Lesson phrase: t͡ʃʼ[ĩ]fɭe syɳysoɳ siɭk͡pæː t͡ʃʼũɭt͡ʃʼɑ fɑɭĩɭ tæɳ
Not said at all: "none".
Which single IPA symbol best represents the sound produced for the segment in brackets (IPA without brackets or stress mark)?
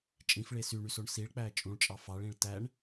ĩ